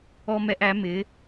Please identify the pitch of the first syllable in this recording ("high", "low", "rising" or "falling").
high